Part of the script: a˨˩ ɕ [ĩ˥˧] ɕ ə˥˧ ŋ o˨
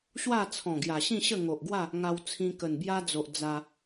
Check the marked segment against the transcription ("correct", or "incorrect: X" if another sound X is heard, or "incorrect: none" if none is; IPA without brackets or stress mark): correct